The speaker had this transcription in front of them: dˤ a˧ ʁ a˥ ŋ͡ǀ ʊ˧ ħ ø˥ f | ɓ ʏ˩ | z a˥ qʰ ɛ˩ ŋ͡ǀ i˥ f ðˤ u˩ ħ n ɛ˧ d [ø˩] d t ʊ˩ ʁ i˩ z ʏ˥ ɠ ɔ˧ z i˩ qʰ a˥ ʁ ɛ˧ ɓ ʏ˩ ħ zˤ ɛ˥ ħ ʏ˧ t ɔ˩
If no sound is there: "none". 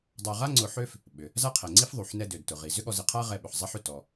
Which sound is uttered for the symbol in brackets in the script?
ø˩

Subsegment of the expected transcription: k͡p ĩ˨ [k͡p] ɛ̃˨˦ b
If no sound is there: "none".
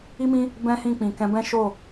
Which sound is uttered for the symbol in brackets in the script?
k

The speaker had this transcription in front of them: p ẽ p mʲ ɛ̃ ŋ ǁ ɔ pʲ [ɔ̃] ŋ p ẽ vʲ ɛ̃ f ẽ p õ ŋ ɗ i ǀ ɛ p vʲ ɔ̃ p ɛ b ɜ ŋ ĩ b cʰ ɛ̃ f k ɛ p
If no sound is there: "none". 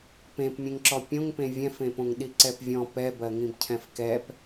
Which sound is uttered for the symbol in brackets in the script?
õ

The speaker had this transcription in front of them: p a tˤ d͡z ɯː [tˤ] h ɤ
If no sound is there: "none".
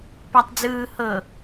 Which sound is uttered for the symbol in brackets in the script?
none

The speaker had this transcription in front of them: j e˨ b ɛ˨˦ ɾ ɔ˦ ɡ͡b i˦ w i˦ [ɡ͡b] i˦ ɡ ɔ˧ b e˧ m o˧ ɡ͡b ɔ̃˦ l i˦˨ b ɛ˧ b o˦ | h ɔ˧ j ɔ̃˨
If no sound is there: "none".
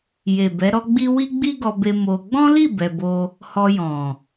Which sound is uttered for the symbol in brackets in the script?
ɡ͡b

